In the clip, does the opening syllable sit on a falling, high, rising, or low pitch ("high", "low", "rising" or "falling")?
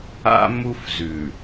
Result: high